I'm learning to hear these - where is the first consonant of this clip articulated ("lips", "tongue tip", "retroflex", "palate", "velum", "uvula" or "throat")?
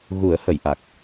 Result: velum